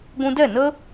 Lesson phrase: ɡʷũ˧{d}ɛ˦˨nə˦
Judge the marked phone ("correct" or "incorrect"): correct